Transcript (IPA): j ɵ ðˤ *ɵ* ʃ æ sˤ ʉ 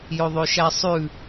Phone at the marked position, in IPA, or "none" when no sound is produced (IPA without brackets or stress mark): ø